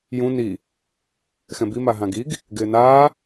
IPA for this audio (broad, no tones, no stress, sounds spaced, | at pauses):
j ũ n i | x ɛ̃ b i m a ɦ ã ɡ i ɡ | ɡ ɪː n aː